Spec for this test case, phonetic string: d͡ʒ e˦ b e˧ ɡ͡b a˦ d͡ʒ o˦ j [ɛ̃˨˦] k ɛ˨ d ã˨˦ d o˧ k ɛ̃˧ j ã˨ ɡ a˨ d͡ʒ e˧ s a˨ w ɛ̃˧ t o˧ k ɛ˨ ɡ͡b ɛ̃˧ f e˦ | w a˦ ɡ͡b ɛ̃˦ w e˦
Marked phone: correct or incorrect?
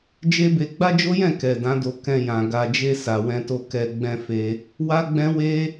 incorrect